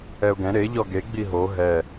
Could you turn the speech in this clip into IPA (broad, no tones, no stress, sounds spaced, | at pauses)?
ɛ ʊ̯ ɡ ɛ̃ ɾ e ʎ ɔ ɡ e ɡ͡b i ɦ o ɦ ɛ